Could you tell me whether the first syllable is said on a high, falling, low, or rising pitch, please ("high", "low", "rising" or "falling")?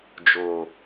low